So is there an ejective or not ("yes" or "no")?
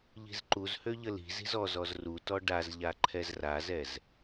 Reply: no